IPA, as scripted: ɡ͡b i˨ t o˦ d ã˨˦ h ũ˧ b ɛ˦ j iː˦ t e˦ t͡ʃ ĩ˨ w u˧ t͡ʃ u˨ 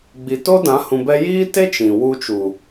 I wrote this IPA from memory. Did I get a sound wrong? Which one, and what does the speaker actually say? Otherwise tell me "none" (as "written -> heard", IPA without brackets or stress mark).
none